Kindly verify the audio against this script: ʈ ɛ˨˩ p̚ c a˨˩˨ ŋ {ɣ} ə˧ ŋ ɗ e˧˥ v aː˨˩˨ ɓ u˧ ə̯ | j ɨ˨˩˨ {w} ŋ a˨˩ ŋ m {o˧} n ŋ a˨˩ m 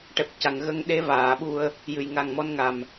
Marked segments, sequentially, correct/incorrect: correct, incorrect: j, incorrect: ɔ˧

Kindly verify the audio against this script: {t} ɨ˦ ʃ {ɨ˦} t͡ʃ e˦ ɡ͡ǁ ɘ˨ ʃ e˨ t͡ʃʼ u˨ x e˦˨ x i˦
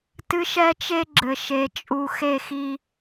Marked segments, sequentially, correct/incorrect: correct, incorrect: ɛ˦

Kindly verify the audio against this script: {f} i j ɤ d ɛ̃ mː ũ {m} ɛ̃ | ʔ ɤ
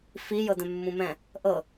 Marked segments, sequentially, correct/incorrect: correct, correct

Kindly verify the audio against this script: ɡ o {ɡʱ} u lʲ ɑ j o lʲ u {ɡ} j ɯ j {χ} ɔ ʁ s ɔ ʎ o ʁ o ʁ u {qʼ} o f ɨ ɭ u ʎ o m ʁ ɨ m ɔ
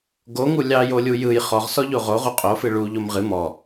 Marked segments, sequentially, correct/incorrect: incorrect: ŋ, incorrect: none, correct, correct

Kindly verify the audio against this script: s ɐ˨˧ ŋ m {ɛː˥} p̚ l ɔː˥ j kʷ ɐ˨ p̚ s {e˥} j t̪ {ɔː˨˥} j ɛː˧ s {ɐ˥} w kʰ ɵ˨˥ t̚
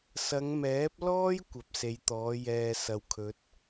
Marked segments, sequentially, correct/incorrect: incorrect: ɛː˨˥, incorrect: e˨˧, correct, incorrect: ɐ˨

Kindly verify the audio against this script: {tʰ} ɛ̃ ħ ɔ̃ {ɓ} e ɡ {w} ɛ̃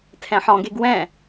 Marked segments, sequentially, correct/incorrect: correct, incorrect: ɡ, correct

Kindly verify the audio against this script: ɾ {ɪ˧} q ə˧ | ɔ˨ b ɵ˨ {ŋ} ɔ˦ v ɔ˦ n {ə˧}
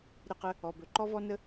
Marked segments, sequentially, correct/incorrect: correct, incorrect: ǃ, incorrect: ə˦

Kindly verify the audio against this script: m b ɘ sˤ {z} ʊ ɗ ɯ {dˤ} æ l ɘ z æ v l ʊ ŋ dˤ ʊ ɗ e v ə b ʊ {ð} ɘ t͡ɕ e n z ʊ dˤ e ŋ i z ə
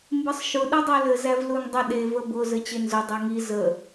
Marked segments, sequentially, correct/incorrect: incorrect: ʃ, correct, incorrect: z

